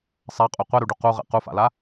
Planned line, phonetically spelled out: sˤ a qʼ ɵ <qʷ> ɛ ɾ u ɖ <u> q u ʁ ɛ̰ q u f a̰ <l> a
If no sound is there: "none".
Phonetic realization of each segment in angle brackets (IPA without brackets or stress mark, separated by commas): qʷ, u, l